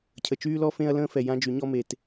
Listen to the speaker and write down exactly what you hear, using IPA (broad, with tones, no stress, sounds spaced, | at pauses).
cʰ ə˨ t͡ʃ yː˦ l ɔ˦ f ẽ˦ ɐ̯ l ə̃ː˦ f ɛ˨ j ã˦ d͡ʒ y˨˦ ɲ ɔ˦ m e˨ t